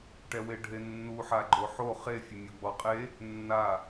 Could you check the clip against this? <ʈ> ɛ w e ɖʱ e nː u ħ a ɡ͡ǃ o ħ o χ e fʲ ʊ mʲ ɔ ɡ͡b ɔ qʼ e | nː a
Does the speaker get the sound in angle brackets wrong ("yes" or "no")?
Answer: no